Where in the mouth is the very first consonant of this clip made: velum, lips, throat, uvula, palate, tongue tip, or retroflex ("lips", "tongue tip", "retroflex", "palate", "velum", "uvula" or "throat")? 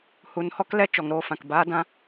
throat